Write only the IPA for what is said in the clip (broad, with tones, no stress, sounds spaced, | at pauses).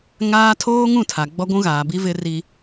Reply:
ŋ aː˦ tʰ oː˦ ŋ ũ˦˨ tʰ a˨ ɡ͡b ɔ˦ ɡʷ ũ˦ ɣ aː˨ b i˦ v ɪ˦ r i˦